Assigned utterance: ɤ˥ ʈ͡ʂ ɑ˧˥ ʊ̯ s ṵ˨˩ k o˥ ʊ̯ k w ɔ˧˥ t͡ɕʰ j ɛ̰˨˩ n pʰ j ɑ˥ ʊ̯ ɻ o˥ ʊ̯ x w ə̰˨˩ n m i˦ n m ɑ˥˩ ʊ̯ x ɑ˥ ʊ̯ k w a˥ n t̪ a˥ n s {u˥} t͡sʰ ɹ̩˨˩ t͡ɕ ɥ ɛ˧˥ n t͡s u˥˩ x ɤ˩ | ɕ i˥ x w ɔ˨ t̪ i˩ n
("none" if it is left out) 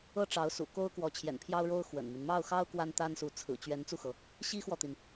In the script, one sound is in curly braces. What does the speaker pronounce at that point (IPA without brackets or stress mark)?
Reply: u˧˥